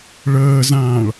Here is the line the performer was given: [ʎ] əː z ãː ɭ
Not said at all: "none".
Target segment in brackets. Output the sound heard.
ɭ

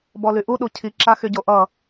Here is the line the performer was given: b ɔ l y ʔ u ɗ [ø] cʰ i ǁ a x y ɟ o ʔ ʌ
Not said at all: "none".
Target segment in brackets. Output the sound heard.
u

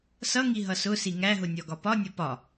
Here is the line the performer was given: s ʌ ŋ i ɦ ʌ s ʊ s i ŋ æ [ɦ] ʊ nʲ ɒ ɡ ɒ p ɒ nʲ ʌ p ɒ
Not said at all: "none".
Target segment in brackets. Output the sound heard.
ɦ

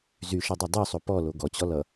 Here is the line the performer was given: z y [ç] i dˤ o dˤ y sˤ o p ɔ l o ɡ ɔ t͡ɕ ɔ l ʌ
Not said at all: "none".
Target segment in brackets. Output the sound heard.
ʃ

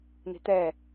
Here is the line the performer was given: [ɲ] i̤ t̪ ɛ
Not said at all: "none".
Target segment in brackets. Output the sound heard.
n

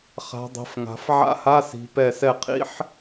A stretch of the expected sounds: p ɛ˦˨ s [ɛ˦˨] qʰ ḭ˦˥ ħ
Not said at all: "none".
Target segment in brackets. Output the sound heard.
ɛ˦˨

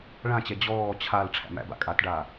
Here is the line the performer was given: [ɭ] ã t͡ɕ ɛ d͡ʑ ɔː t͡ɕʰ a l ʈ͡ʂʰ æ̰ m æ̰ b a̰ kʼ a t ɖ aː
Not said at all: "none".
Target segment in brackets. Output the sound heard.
ɭ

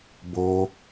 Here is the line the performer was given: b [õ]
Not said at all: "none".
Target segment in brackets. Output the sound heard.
o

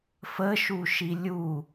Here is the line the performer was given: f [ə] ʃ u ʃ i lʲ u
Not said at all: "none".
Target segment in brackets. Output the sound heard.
ə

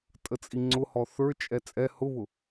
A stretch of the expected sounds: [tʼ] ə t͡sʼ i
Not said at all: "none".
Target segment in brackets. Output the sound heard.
tʼ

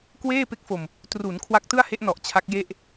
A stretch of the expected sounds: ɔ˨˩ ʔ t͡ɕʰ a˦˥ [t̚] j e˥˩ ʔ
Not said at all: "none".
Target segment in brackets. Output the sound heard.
k̚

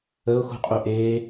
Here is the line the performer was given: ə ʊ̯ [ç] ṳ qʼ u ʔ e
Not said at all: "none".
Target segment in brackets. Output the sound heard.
x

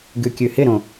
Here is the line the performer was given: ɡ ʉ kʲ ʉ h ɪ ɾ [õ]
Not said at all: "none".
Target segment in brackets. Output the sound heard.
õ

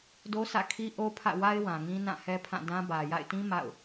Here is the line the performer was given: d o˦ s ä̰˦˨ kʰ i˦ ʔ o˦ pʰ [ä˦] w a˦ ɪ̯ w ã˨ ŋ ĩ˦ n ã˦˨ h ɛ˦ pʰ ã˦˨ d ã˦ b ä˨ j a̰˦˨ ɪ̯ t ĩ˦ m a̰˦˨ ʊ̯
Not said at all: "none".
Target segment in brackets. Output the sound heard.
ä̰˦˨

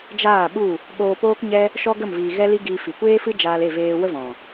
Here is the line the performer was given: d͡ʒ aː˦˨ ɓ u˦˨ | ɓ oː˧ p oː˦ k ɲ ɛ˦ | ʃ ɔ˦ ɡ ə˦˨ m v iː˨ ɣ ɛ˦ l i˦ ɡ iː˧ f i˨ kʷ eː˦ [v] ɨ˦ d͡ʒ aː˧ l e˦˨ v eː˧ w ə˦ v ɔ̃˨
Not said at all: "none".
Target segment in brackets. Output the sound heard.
f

